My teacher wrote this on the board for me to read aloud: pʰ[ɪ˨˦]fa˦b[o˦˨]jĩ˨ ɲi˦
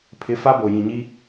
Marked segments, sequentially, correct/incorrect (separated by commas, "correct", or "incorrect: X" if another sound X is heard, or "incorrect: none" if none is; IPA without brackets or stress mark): correct, incorrect: o˨